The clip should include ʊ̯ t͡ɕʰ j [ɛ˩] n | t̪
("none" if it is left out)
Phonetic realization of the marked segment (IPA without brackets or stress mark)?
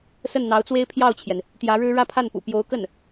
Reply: ɛ˩